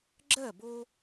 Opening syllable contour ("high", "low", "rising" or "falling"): falling